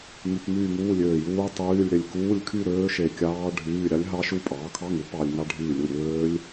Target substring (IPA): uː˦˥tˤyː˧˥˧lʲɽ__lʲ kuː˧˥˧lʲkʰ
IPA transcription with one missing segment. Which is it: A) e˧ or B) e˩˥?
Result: A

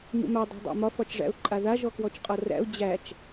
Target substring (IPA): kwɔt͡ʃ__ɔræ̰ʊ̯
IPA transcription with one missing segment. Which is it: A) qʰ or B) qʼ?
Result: B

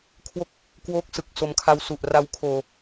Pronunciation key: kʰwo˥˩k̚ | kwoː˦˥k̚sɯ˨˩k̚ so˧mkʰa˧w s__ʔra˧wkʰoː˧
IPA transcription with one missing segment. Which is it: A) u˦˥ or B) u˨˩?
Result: B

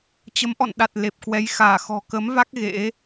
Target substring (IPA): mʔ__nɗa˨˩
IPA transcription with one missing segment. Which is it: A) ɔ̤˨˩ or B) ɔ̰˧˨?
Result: B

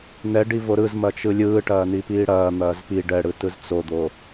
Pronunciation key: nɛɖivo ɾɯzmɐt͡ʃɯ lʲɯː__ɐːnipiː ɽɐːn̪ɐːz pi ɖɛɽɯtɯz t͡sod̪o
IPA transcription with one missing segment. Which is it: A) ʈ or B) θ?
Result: A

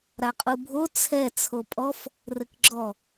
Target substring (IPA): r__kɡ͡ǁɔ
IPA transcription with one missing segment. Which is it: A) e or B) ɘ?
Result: B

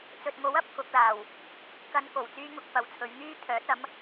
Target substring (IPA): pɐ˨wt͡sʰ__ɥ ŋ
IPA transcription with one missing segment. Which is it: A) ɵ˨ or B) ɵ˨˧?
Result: B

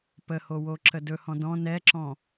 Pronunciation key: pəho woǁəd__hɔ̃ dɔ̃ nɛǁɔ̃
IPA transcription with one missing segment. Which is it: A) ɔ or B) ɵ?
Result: B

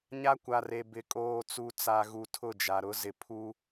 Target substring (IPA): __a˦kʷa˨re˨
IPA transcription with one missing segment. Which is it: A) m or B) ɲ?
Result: B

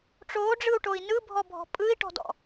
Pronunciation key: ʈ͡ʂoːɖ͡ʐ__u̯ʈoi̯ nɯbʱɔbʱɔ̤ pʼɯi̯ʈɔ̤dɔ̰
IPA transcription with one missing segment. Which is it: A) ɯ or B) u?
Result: A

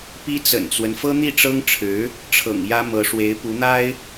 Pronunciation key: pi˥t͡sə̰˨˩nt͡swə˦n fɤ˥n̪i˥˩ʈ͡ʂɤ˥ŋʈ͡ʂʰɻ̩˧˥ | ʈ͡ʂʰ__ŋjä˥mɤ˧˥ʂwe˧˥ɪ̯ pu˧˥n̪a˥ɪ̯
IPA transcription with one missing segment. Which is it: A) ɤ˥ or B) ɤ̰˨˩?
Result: B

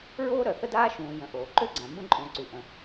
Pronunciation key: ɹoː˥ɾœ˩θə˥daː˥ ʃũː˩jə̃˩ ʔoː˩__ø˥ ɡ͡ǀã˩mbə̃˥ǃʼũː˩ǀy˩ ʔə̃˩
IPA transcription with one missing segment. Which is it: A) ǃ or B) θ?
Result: A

